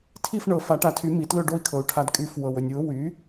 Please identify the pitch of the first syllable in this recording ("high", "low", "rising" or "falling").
falling